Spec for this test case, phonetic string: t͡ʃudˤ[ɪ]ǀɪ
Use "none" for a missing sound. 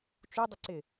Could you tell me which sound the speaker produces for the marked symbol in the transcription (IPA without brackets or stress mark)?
ə